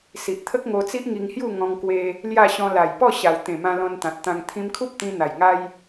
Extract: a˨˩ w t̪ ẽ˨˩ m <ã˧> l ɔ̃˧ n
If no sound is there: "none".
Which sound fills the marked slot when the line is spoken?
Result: ã˧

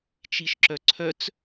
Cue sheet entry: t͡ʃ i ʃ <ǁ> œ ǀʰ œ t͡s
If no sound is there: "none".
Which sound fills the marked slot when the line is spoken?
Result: ǁ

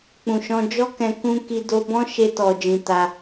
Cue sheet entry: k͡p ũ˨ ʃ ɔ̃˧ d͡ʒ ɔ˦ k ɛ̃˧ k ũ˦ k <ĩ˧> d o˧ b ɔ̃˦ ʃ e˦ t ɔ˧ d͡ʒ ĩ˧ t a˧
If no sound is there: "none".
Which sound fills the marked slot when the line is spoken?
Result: i˧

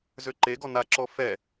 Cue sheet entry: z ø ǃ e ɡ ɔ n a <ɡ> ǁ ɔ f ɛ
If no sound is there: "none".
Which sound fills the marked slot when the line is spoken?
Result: none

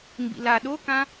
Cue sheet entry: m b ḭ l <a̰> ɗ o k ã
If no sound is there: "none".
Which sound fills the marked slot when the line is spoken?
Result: a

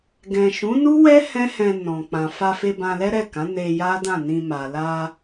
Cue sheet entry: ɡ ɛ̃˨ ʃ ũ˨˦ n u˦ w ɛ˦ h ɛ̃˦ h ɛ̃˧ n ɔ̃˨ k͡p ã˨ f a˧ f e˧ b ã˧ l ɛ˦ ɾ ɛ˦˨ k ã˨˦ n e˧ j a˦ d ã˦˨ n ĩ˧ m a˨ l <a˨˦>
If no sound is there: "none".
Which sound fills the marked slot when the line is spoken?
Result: a˧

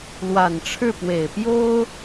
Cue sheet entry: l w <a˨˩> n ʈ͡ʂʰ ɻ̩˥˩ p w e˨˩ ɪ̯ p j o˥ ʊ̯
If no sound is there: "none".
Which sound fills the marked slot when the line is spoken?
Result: a˨˩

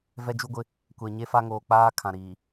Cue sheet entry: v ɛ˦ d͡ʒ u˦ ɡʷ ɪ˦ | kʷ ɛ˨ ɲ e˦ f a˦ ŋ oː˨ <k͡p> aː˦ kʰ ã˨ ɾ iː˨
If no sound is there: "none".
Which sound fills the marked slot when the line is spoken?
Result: k͡p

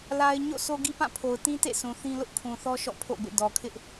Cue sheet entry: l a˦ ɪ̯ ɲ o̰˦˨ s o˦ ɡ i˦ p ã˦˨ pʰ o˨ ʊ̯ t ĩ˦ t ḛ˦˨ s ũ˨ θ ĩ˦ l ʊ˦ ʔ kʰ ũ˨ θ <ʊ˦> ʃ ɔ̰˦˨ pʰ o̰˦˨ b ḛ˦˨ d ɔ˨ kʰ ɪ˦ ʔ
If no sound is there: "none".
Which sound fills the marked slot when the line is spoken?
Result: ɔ˦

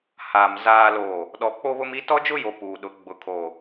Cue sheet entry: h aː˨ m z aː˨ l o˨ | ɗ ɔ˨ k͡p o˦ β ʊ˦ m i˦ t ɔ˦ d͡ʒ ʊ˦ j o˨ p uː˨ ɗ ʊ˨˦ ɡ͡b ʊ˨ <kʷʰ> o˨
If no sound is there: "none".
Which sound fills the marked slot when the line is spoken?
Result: kʰ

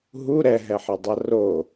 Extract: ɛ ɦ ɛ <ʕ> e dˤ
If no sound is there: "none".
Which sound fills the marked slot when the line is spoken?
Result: ħ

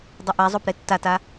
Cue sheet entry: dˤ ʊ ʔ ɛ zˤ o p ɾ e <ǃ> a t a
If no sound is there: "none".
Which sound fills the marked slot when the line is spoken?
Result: tː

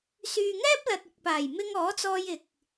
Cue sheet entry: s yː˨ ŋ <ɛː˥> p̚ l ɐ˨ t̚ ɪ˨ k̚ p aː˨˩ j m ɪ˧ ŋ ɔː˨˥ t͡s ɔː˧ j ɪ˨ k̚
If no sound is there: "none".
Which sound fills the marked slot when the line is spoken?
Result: ɛː˥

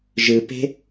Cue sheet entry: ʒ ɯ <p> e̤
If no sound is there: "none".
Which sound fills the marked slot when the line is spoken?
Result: p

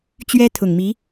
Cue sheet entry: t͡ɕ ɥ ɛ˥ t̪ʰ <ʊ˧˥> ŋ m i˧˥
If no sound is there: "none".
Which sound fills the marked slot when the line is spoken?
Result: ʊ˨˩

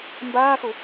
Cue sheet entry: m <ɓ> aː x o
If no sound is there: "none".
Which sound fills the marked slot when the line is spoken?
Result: b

